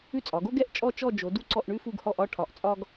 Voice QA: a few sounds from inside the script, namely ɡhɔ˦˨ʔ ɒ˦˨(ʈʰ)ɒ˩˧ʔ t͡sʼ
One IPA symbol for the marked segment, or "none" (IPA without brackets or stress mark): ʈʰ